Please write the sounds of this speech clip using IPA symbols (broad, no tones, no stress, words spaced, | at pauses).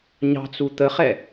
ɲɑ̤t͡su t̪əχɛ